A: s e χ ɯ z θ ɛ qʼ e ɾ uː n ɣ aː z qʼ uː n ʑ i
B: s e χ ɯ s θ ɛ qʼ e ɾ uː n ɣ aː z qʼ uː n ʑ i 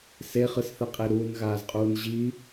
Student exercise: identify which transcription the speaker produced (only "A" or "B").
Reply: B